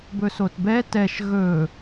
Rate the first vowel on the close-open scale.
mid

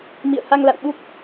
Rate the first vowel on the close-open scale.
close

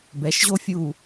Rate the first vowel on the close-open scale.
mid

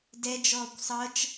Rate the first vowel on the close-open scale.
mid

